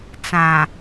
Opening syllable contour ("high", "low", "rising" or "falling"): low